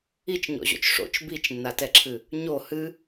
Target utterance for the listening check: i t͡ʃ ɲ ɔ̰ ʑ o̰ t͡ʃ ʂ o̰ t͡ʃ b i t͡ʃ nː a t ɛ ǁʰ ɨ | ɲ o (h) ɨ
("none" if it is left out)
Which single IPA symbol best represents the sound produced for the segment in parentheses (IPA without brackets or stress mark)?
h